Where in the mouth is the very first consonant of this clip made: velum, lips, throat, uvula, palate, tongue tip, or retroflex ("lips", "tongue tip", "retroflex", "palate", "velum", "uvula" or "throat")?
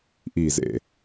throat